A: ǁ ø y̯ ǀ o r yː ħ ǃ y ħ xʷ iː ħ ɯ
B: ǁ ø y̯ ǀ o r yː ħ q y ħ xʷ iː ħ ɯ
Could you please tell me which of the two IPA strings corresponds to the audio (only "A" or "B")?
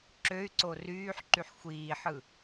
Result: A